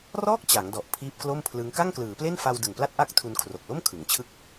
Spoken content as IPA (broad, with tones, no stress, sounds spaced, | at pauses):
r ɔː˥˩ k̚ t͡ɕ a˩˦ ŋ d ɔ˨˩ ʔ pʰ iː˦˥ p̚ k l o˥˩ m pʰ l ɯ˦˥ ŋ k a˥˩ ŋ k l ɯː˩˦ p l e˥˩ n f a˧ w d ɯ˨˩ ŋ p l a˥˩ t̚ ʔ a˥˩ k̚ tʰ u˧ n kʰ r o˨˩ k̚ l o˥˩ m kʰ ɯ˩˦ ŋ t͡ɕʰ ɯ˥˩ k̚